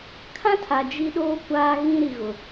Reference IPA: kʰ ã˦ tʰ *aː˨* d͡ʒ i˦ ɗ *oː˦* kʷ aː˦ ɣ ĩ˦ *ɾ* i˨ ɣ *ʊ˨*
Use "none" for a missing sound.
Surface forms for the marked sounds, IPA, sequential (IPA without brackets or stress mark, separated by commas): a˨, oː˦, ɾ, ʊ˨